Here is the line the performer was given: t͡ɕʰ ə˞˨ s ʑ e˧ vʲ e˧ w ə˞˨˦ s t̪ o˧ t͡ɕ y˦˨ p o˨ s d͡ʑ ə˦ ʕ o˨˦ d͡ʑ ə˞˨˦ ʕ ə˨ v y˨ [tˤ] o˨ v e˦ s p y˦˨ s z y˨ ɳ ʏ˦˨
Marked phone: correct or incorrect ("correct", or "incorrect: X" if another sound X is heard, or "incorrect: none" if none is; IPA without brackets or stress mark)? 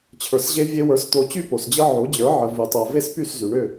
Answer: correct